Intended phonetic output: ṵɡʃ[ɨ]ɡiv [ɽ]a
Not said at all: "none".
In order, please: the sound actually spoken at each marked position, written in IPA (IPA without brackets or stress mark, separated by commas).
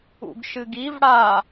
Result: ɨ, ɽ